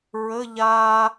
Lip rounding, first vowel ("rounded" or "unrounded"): unrounded